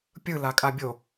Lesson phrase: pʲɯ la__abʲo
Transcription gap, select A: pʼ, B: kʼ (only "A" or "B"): B